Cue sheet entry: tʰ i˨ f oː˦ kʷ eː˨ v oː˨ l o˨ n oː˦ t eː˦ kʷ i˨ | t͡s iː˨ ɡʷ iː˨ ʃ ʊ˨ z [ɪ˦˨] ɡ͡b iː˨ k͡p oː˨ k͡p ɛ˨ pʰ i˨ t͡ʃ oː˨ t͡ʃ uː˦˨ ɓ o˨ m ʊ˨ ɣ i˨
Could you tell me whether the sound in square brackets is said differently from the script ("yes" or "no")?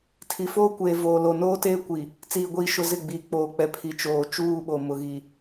no